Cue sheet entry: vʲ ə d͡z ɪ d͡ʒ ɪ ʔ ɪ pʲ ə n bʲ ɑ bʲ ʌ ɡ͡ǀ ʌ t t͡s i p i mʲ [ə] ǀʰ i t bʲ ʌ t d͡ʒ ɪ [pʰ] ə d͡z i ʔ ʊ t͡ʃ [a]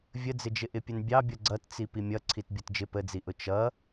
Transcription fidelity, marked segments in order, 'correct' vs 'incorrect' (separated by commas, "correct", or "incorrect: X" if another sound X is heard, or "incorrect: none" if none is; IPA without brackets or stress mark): incorrect: ʌ, incorrect: p, incorrect: ʌ